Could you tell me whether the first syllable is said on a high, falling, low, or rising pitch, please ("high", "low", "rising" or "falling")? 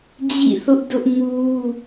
falling